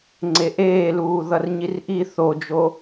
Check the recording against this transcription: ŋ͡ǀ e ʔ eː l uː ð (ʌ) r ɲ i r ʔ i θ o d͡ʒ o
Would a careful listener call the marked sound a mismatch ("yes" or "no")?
no